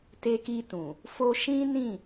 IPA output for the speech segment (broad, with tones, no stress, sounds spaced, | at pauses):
t e˧ k i˧ t ũ˨ | f o˧ ʃ ĩ˦ n ĩ˦˨